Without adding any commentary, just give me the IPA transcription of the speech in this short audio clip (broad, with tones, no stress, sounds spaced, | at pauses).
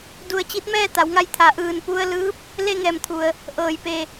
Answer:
d u˥˨ ə̯ t͡ɕ i˧˥ t̚ m ɛː˥˨ t̪ a˩˧ w ŋ a˧ j t̪ʰ a˩˧ ʔ ɯː˧˩ n p u˧ ə̯ l ɯː˧˥ p̚ | l e˥˨ ŋ ɛː˧˩ m t̪ʰ u˩ ə̯ | ʔ ɤː˧˩ j p e˧˩